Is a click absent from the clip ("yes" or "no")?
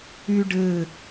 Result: yes